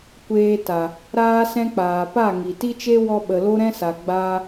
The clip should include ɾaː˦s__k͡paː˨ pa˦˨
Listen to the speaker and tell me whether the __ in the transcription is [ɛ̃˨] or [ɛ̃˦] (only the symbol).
ɛ̃˦